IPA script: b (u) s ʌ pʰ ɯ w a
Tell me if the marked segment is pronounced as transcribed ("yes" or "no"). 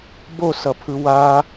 no